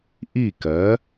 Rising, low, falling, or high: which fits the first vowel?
falling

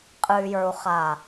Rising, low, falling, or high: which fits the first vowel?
low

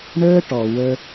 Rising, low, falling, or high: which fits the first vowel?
high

